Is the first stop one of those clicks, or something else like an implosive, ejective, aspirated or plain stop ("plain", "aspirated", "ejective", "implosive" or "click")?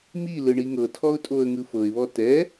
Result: aspirated